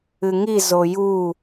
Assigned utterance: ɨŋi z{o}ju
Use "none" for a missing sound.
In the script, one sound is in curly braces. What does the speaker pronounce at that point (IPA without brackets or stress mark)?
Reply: o